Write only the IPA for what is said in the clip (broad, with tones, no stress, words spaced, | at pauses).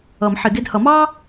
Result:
ʌ˨˩˦mħɪ˨˩˦ɡɪ˧˥˧d hʌ˨˩˦mɑː˥